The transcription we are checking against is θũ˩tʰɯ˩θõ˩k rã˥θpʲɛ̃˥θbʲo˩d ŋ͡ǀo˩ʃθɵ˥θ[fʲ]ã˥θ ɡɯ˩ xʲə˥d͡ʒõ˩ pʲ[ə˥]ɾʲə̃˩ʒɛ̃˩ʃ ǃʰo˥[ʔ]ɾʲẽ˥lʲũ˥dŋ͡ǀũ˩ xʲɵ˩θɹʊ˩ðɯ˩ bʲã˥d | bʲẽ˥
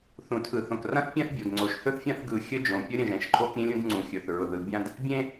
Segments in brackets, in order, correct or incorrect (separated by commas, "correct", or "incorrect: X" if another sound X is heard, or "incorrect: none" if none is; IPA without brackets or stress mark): correct, correct, incorrect: k